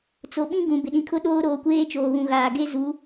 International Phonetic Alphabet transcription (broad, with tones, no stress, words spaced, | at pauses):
t͡so˨ɓĩ˦ ɡũ˨ bɪ˨ɗĩ˨kʰʊ˦ɗoː˦ ɾoː˨˦kʷeː˦ t͡ʃoː˨ɣũ˨ɣaː˨ ɡe˦zu˨˦